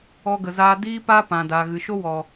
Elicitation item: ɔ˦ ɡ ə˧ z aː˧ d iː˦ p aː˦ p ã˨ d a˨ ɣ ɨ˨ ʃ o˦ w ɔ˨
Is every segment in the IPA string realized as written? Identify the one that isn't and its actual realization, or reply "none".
a˨ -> aː˨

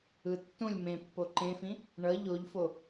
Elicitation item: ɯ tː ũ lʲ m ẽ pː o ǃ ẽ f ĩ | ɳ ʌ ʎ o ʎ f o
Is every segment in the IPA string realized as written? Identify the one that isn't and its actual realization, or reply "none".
none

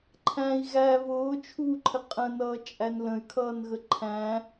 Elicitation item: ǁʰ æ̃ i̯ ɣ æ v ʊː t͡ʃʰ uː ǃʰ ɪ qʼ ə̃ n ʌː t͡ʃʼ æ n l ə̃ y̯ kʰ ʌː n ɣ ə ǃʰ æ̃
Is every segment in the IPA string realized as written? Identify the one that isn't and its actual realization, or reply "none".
ǁʰ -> ǃʰ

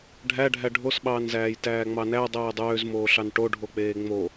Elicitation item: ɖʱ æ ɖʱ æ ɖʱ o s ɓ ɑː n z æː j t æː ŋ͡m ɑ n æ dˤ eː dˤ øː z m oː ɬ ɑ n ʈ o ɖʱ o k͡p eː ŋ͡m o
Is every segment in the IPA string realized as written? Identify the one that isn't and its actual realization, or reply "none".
none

